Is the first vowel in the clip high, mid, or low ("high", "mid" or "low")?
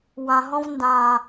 low